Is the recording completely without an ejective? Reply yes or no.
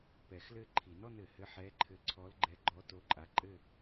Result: no